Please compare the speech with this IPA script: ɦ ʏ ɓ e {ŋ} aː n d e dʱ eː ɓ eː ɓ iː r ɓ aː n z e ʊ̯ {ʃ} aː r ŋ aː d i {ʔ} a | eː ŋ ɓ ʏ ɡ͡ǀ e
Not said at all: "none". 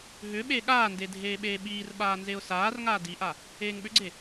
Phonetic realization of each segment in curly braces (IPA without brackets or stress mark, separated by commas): ɠ, s, ʔ